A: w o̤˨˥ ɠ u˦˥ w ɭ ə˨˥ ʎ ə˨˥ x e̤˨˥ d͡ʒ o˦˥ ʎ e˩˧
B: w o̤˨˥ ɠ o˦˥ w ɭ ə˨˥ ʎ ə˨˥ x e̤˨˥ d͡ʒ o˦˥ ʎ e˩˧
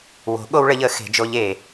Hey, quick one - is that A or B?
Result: B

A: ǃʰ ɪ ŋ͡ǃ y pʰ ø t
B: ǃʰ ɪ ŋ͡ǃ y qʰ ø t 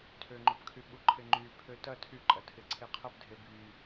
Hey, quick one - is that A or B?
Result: A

